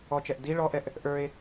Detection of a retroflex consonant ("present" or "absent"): present